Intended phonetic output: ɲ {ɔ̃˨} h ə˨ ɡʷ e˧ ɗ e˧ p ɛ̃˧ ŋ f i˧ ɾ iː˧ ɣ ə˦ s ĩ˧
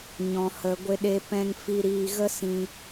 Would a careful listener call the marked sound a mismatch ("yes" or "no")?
no